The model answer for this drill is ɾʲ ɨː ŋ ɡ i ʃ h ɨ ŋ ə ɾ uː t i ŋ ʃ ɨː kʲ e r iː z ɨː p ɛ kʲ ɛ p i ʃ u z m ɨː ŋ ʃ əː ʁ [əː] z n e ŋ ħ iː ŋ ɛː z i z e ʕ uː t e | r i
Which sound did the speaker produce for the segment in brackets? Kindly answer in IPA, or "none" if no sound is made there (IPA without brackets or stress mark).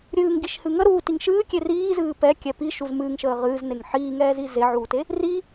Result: ɨː